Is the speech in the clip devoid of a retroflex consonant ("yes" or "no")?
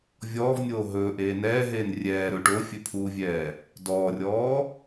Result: no